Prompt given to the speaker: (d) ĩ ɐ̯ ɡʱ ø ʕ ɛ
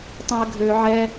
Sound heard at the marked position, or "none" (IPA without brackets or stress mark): tˤ